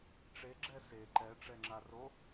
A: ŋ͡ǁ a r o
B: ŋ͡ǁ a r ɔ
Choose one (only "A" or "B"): A